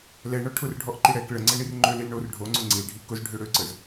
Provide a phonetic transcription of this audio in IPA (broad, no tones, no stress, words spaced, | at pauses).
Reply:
lɛɳɔ ʈʰʊrɖʱɔʔǃi ɽɛk ɭəŋ͡ǀɛɳir ŋ͡ǃølil ɳor ɖʱoŋ͡ǀʊ ŋ͡ǀilɖʱi kʊzɖʱø ɽøǀəz